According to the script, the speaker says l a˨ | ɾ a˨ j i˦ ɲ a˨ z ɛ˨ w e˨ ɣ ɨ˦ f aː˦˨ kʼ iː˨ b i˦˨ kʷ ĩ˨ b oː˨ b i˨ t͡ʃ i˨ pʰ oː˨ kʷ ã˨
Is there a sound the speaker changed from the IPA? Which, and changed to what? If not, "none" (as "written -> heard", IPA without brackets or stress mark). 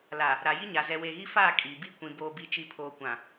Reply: ɨ˦ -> i˦